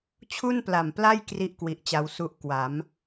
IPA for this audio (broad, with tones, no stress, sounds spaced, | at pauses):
t͡ɕʰ u˥˩ n p l a˨˩ m p l a˥˩ j k r i˥˩ ʔ k w i˨˩ ʔ t͡ɕ a˧ w s u˥˩ ʔ k w a˩˦ m